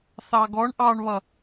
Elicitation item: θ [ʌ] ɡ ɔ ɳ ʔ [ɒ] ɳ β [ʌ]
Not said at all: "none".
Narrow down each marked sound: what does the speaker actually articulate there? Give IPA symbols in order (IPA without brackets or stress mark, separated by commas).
ɑ, ɑ, ʌ